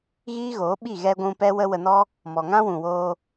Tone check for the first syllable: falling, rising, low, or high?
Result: high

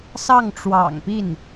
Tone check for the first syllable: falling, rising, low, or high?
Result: falling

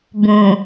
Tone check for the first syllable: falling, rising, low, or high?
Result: low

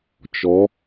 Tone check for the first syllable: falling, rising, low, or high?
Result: rising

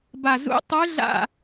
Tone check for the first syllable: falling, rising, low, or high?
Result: low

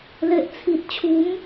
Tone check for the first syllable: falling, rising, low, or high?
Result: low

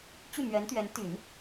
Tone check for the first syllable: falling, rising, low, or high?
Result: falling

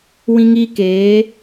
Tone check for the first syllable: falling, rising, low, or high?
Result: high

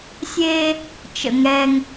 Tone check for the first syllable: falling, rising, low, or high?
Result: high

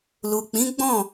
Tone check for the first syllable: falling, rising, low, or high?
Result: low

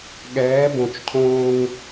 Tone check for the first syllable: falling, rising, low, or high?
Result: rising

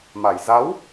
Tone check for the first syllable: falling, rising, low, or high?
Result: low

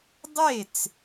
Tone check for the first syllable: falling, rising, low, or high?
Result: falling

